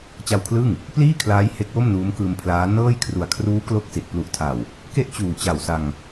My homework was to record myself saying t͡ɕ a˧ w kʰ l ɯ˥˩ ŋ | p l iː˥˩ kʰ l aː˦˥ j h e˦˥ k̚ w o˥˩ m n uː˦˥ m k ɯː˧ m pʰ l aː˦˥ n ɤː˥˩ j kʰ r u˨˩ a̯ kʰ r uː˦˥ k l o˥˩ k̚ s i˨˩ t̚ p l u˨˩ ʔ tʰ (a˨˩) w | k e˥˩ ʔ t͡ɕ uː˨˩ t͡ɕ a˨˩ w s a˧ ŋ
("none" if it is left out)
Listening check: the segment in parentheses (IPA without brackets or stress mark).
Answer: a˨˩